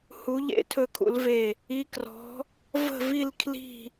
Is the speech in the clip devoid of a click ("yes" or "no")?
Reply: yes